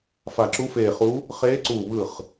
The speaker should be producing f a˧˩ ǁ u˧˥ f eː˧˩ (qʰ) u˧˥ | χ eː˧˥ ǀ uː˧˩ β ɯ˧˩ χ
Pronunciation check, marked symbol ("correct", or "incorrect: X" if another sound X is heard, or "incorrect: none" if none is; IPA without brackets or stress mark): incorrect: χ